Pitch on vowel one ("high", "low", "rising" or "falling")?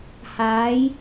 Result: rising